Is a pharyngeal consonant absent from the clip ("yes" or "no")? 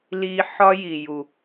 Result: no